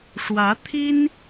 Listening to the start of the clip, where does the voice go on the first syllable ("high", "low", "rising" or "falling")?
rising